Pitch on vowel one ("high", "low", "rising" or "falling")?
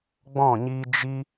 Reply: falling